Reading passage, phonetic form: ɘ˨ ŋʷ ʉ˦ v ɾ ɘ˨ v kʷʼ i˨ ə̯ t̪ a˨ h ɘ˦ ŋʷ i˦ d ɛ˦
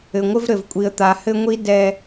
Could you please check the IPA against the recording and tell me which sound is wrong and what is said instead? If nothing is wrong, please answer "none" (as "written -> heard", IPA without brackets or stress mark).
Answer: ʉ˦ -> ɘ˦